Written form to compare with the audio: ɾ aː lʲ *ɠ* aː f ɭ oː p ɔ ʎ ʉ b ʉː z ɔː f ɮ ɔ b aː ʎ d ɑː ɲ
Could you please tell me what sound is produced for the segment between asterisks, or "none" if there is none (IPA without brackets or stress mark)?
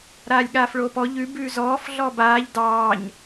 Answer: ɠ